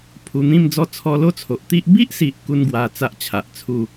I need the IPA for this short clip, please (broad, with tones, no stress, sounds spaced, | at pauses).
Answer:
pʰ u˧ n̪ ĩ˥˧ m d͡z ɔ˦ t͡sʰ ɔ˧ l o˥˧ t͡sʰ o˨ ʔ t̪ i˦ ʔ b i˦ ʔ s i˨ ʔ k u˧ n ɡ w a˨˩ t͡s a˦ ʔ t͡ɕʰ a˨ ʔ t͡sʰ u˥˧